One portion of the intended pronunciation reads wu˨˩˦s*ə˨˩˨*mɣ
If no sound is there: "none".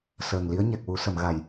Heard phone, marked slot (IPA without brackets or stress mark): ə˨˩˨